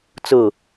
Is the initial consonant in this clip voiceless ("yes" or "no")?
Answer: yes